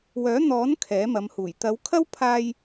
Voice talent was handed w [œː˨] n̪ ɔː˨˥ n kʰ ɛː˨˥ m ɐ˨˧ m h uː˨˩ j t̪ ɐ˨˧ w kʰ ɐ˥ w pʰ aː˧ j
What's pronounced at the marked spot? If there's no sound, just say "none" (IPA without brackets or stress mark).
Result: œː˨˥